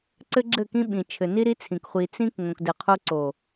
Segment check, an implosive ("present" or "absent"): present